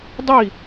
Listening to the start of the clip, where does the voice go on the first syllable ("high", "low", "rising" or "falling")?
falling